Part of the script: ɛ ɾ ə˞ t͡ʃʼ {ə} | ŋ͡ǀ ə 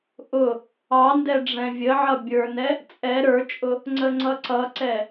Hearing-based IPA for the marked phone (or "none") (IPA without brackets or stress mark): ʊ